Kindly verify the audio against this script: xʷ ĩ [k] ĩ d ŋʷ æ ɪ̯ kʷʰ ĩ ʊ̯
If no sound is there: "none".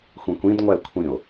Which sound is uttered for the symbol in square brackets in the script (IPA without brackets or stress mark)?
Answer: kʷ